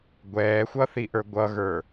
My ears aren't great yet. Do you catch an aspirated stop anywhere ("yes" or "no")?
no